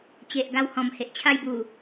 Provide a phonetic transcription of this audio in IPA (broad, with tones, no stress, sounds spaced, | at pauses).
t͡ɕ e˨ ʔ ɡ a˧ w h ɔ̃˨˩ m h e˨ ʔ t͡ɕʰ a˥˧ j b u˨˩